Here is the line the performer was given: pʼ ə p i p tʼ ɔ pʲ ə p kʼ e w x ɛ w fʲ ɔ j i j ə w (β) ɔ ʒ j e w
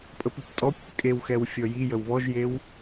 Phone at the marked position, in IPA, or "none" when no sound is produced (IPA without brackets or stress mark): β